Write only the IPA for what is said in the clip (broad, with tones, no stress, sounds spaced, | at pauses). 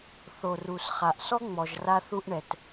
θ o˩ r u˩ s χ a˩ ʔ s ɔ˥ ŋ͡m ɔ˩ ʒ r a˥ θ u˥ ʔ ɳ ɛ˩ t